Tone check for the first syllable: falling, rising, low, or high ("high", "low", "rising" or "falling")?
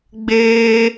high